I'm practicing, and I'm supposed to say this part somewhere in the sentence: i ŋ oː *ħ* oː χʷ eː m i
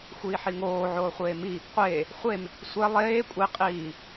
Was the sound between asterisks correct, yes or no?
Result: no